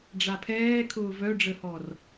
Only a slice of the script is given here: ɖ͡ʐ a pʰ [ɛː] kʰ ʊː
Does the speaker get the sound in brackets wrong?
no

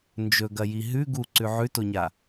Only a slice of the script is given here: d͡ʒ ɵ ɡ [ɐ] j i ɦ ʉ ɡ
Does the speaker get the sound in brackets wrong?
no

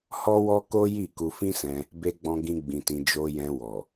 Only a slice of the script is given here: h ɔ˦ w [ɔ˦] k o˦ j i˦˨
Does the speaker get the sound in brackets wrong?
no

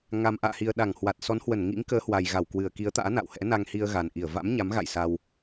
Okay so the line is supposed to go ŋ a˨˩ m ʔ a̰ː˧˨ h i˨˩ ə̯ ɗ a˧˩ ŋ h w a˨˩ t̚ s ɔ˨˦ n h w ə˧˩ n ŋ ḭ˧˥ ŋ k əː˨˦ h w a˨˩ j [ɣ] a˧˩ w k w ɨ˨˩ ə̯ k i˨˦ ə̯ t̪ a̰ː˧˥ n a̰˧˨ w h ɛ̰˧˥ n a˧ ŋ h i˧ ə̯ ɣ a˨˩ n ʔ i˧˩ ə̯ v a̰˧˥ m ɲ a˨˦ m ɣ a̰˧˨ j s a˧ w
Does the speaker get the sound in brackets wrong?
no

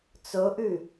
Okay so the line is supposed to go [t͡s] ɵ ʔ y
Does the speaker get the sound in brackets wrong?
no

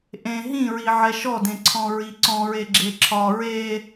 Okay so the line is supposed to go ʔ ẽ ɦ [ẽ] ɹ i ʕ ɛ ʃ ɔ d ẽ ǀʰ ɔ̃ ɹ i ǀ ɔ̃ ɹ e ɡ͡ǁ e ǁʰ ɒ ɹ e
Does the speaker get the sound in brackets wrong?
yes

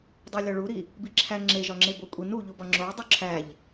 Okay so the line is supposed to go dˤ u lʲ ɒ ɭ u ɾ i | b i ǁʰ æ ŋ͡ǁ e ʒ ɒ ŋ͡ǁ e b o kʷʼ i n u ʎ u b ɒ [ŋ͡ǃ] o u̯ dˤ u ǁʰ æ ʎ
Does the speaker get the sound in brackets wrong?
yes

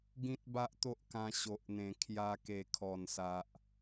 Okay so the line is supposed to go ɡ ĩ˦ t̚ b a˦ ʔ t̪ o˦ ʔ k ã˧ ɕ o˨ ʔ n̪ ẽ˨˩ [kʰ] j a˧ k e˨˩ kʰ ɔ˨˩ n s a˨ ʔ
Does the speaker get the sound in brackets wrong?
no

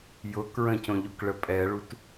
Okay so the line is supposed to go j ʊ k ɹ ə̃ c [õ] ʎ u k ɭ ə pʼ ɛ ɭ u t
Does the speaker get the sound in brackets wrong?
no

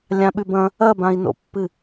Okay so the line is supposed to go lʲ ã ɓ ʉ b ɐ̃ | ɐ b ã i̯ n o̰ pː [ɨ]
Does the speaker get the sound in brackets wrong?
no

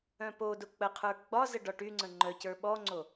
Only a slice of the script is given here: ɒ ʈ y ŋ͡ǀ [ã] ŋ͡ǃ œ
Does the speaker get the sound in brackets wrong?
yes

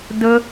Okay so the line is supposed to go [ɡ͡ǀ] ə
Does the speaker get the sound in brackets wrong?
yes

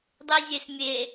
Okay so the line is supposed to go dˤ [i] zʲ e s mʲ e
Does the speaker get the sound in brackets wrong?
no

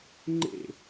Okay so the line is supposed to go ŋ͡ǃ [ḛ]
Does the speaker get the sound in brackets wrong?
no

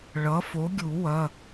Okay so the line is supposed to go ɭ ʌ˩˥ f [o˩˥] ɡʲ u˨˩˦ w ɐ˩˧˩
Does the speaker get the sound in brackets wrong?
no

